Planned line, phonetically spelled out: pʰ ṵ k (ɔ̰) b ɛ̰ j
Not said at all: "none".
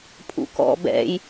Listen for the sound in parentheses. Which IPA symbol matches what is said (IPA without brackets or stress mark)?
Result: ɔ̰